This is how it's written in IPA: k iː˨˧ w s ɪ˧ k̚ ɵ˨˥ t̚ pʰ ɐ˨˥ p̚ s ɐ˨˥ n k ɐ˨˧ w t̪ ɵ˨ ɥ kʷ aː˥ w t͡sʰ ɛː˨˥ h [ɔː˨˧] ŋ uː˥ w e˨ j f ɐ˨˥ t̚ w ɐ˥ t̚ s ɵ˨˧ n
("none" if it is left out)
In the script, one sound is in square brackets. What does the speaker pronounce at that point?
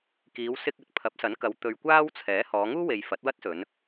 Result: ɔː˨˧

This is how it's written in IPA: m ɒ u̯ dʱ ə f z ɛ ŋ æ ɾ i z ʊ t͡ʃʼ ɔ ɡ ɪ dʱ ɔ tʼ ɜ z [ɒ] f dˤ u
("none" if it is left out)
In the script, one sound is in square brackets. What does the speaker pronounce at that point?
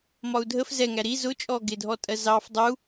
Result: ɑ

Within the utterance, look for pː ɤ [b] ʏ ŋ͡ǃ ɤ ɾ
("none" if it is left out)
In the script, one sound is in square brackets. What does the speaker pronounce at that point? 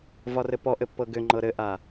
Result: ɡ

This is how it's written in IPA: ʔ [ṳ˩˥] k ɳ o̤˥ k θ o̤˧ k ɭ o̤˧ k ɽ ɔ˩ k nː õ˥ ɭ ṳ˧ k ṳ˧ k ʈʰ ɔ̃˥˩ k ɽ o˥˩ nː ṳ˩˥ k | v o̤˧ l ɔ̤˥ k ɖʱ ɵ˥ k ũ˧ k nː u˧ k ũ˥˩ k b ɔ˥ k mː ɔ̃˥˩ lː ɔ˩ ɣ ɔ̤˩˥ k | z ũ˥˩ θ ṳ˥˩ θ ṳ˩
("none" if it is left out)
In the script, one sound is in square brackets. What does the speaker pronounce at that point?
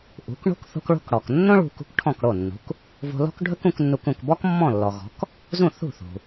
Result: ṳ˩˥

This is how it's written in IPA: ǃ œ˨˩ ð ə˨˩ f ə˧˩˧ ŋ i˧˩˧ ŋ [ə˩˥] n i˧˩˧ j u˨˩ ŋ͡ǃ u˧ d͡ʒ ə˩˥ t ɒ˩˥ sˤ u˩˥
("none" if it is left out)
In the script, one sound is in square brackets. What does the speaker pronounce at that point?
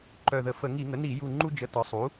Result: ə˩˥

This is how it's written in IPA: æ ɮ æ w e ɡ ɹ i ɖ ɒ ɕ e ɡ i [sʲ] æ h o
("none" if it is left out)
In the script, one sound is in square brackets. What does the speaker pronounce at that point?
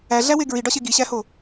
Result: ɕ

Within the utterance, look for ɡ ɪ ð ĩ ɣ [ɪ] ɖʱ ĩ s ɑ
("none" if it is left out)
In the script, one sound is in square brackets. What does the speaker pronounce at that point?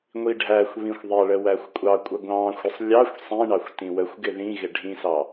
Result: ɪ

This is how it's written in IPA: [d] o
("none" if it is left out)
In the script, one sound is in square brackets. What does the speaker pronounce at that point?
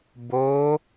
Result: b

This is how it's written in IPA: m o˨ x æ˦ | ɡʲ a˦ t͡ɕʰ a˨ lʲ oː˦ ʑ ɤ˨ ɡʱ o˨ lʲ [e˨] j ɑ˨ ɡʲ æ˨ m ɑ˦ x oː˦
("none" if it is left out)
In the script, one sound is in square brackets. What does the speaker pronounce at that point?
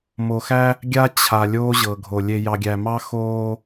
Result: e˨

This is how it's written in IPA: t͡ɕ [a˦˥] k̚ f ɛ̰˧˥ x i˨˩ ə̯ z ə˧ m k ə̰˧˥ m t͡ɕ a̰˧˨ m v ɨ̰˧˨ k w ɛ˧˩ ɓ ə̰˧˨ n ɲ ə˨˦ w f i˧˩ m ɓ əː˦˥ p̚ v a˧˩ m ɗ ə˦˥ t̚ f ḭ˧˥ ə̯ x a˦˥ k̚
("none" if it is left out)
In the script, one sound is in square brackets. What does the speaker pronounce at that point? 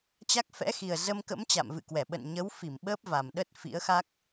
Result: a˦˥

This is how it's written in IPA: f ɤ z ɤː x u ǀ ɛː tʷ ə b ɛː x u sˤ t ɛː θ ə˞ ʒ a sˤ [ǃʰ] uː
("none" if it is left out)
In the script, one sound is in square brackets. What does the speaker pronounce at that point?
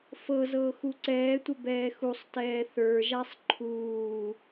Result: ǃʰ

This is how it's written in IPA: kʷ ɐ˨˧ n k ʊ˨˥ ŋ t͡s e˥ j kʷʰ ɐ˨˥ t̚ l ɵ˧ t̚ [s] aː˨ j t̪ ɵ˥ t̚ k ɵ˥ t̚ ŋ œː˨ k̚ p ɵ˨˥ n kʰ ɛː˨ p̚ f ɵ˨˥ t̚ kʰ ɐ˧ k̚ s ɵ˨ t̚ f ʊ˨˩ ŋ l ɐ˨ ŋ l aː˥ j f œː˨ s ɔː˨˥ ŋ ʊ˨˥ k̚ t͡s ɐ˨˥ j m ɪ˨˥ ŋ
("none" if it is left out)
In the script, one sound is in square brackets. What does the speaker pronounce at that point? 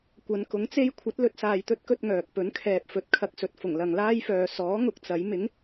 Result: s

